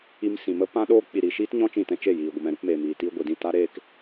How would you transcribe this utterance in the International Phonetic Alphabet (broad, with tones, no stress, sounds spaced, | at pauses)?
i˧ m s ĩ˨ m ə˦ p ã˧ ɗ oː˧ k͡p i˨ ɾ i˨ ʃ iː˦ t ɲ ɔ̃˦ t͡ʃ ĩ˦˨ t ɛ̃˦ t͡ʃ e˦˨ j iː˨ ɡʷ ə˨ m ɛ̃˨ ɾ u˧ p m eː˨ m iː˨ t iː˧ ɡʷ i˨ d ĩ˦˨ t a˦ ɾ eː˦ k